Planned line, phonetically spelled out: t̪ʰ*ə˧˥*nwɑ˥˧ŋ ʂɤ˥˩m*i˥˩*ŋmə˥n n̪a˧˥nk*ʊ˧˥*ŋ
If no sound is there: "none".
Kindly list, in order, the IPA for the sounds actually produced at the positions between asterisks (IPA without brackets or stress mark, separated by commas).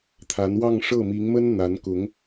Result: a˧˥, i˧˥, ʊ˧˥